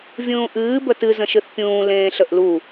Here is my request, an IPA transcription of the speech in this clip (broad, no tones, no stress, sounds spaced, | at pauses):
vʲ ũː ʔ ɨː b ə t ɨ z ə̃ ʃ ɨ θ pʲ ũː l ẽː ɬ ə ʔ l u